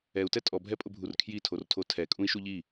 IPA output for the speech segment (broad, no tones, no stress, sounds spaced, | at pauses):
ɛ u̯ t ɛ tʼ ɔ bʱ ɛ pʼ ʊ bʱ u r kʰ j i tʰ o r tʰ o tʰ ɛ kʼ ũ i̯ ʃ u ʎ i